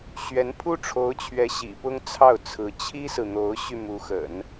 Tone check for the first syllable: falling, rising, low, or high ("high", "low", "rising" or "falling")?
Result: rising